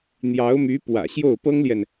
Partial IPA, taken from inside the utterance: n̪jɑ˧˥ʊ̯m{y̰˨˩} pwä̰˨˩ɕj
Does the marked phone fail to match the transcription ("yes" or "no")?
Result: yes